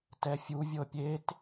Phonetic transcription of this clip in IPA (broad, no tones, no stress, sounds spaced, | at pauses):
t ɛ fʲ u vʲ ɤ pʲ e t